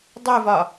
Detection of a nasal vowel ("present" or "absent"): absent